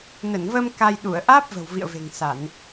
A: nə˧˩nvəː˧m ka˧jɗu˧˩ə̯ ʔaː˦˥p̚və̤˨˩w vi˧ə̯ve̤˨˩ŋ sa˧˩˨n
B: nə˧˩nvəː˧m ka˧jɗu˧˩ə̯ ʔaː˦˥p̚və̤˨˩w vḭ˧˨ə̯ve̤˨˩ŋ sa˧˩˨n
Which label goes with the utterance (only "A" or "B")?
B